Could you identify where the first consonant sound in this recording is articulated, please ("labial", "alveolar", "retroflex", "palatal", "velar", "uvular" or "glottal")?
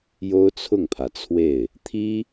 palatal